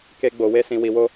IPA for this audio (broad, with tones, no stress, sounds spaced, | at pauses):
k e˧ ɡ͡b o˨ w e˧ s ĩ˨ w i˨ w o˧